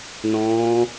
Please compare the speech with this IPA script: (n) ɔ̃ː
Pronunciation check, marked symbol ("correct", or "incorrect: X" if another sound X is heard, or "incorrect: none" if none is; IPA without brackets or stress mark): correct